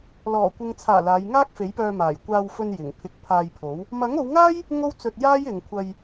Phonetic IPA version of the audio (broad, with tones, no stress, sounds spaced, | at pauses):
l ɔː˨˩ kʷ ɪ˨ ŋ t͡sʰ aː˨˩ l aː˨˧ j ŋ aː˥ k̚ f e˨˥ j p œː˧ m aː˨˩ j kʷ aː˧ w f ɵ˧ n j ɪ˨˩ ŋ pʰ ɪ˨˥ k̚ pʰ aː˧ j pʰ o˨˥ w | m ɐ˨˥ ŋ o˨˧ w ŋ aː˥ j | ŋ o˥ w t͡s ɵ˧ t̚ j aː˥ j ɪ˨ ŋ kʷʰ ɐ˧ j